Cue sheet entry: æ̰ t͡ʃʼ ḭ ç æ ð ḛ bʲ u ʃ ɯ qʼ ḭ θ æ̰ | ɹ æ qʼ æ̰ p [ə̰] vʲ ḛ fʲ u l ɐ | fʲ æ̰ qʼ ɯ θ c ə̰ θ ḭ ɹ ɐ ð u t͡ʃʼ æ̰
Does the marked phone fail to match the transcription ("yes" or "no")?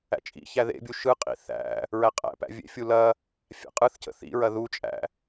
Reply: yes